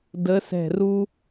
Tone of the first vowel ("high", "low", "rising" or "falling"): rising